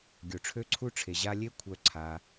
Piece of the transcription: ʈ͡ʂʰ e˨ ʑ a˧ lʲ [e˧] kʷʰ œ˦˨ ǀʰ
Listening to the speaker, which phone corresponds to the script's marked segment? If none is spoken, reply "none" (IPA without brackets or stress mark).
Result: e˦